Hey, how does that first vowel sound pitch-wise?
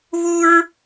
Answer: high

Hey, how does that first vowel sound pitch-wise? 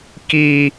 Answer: high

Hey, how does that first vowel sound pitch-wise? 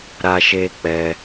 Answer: high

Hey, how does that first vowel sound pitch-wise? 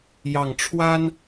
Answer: low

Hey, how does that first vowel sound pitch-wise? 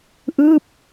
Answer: falling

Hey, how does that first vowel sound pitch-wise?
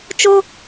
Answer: high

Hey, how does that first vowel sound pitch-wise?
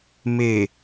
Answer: low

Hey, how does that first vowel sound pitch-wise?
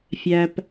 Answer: low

